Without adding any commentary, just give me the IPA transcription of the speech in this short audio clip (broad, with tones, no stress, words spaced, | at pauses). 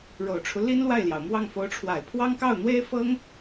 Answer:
ɻo˨˩ʊ̯ʈ͡ʂʰu˦ li˥nlwa˥˩ɪ̯ljɑ˩ʊ̯mwɑ˥˩ŋ fo˧˥ʊ̯ʈ͡ʂʰwa˨˩ɪ̯pʰwɑ˥ŋ kɑ˥˩ʊ̯n̪we˥ɪ̯fɤ˥ŋ